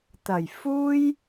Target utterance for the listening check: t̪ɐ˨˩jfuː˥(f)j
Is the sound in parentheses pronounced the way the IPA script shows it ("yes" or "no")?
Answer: no